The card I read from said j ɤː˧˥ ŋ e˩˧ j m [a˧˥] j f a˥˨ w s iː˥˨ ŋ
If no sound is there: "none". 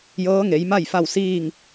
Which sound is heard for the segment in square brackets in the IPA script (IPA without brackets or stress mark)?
a˥˨